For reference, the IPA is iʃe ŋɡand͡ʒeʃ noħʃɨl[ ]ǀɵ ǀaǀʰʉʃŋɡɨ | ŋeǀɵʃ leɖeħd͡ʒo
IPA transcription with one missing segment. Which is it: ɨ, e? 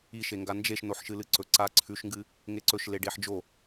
ɨ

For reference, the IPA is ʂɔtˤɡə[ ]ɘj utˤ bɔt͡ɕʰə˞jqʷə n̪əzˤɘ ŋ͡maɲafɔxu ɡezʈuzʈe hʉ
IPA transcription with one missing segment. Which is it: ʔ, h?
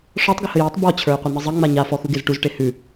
h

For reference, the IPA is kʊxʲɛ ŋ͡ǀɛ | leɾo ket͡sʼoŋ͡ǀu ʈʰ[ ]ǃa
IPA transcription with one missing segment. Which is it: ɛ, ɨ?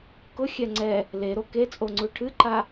ɨ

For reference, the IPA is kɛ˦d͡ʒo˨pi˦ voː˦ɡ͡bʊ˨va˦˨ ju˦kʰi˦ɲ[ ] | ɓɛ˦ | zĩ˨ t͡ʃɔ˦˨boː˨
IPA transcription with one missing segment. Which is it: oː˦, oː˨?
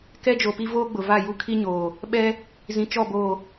oː˨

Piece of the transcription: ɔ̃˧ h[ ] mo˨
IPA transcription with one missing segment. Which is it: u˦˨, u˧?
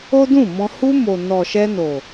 u˧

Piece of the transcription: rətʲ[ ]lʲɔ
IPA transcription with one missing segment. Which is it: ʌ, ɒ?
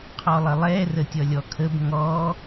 ʌ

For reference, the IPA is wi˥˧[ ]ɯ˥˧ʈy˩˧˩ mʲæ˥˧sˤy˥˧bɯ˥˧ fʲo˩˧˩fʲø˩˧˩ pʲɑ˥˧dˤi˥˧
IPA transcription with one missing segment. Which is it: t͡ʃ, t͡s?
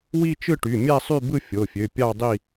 t͡ʃ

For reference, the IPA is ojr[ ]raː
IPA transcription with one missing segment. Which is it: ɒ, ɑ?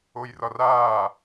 ɒ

